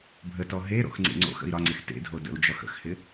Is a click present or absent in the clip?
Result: present